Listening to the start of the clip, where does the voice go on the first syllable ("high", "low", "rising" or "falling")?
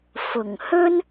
low